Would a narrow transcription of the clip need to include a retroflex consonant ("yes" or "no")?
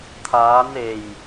no